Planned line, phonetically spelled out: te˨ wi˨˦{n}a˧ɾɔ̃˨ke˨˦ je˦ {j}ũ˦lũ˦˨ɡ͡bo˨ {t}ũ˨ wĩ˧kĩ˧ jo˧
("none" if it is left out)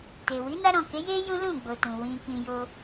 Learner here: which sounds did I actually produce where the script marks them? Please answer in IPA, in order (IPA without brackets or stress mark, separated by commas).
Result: n, j, t